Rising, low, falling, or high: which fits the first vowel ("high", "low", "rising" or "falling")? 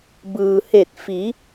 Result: low